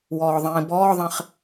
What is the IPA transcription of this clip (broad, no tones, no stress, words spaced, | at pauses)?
wɔːðˤĩːbɔːðˤẽχ